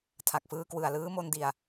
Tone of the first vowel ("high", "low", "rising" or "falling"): low